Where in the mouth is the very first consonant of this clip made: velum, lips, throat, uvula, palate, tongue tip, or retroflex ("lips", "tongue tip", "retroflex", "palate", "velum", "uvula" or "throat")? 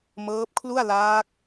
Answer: lips